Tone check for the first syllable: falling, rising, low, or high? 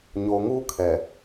low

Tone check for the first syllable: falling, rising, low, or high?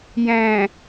low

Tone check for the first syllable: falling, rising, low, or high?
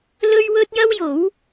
high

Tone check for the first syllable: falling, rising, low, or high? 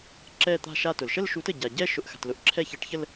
falling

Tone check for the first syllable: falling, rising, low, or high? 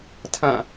falling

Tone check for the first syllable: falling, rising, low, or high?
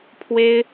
high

